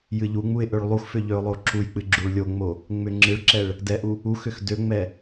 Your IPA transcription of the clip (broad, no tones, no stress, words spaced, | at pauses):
jɨʎuŋ͡muɪ̯ ʔøɭlˠuxfʏ ʎøʊ̯lˠoǁujk͡pɨ ɡ͡ǁuɭlʲoŋ͡mo | ŋ͡mʏŋ͡ǁɨɭǁɛɭ | dɛʔu | uxʏx døŋ͡mɛ